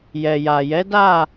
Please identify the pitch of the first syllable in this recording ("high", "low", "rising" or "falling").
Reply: low